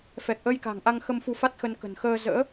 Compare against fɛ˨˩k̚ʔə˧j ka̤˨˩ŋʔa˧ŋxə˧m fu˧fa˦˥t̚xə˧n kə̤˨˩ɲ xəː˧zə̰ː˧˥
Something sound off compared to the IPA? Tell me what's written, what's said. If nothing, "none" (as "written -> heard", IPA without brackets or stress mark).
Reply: ɲ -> n